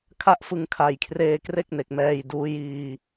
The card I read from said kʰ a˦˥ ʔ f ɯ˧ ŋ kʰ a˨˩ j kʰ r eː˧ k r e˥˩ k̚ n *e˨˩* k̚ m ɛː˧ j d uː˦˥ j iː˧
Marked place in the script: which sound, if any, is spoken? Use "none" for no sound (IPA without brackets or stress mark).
e˨˩